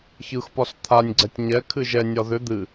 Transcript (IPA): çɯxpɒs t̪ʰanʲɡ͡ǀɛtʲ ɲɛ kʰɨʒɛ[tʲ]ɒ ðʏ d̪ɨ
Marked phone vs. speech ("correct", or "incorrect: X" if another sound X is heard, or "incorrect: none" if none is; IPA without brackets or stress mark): incorrect: nʲ